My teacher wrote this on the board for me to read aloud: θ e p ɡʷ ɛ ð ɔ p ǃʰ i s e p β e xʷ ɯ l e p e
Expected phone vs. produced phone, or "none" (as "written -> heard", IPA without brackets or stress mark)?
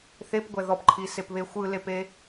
none